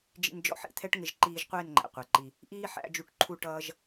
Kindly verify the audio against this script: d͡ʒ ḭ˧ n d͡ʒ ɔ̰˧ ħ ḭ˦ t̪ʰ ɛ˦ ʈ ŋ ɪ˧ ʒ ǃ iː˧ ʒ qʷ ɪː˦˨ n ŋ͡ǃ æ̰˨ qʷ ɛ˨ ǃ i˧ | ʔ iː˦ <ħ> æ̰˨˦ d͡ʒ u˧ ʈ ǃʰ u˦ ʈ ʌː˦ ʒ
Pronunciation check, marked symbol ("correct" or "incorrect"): correct